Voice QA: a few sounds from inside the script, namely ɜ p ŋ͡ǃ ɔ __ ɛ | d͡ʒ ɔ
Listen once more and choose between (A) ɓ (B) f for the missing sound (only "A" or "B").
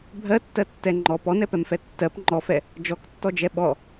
B